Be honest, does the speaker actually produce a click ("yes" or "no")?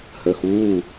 no